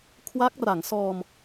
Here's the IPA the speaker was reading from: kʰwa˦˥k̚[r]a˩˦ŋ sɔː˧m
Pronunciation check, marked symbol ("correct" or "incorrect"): correct